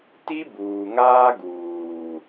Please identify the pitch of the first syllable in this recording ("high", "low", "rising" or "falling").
high